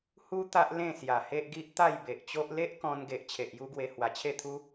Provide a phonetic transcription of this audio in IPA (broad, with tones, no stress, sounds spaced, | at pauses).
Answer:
h u˦ t̪ a˦ ʔ l ẽ˥˧ s j a˨˩ h e˦ ʔ ɡ i˦ ʔ t̪ a˥˧ j b e˨ ʔ t͡ɕ o˦ ʔ l e˦ ʔ k ɔ̃˧ n ɡ e˨ ʔ t͡ɕʰ e˨ ʔ j u˦ ɡ w e˧ h w a˨˩ t͡ɕʰ e˥˧ t̪ʰ u˦